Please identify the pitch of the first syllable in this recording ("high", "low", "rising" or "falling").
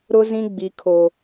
high